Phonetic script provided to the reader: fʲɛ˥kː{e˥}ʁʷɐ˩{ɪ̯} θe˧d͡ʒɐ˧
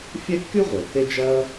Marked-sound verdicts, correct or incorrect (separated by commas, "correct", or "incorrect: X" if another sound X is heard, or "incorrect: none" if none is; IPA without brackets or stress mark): incorrect: y˥, correct